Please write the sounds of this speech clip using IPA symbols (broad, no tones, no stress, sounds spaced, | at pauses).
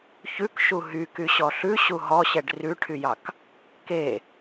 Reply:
ç ʉ k ʃ u ɦ y k y ɕ ɔ ɬ ʉ ɕ u ɦ ɔ ɕ ɛ ɖ r ʉ ʈʰ y j ɑ k | k e